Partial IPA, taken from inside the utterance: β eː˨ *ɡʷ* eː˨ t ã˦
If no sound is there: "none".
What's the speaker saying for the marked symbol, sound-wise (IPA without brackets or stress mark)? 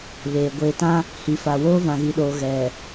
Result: ɡʷ